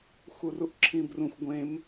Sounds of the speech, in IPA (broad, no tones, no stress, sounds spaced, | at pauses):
x u r u ʔ ǁʰ ĩ b r ũ xʷ ɡʷ ẽ m